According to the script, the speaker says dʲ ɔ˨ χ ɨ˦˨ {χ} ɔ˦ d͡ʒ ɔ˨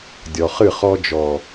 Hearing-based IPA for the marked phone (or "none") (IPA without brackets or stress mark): χ